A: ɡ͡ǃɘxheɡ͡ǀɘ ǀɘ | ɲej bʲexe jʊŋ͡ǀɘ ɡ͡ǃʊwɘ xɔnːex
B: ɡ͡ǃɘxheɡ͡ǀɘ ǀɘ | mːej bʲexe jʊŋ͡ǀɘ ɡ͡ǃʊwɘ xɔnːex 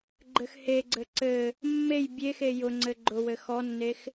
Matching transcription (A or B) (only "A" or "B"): B